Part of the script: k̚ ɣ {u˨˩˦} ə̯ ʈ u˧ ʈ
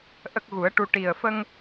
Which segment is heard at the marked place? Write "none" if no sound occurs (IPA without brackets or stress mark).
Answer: u˨˩˦